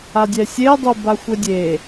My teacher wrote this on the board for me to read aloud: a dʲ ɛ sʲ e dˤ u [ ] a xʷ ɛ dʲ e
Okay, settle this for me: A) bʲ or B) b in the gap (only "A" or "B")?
B